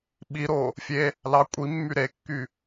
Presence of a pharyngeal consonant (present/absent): absent